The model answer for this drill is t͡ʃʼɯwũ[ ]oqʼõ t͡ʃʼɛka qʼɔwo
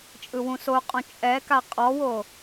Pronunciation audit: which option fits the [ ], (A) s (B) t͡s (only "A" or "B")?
A